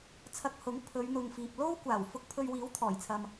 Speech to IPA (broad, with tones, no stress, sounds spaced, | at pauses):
t͡sʰ ɐ˧ k̚ h ʊ˨˥ ŋ pʰ ɵ˨˧ ɥ n̪ ʊ˨ ŋ f iː˨ p̚ l o˥ w kʷ aː˨˩ w f ʊ˧ k̚ pʰ ɵ˧ ɥ w iː˨˥ w t̪ʰ ɔː˨˩ j t͡sʰ ɐ˨ m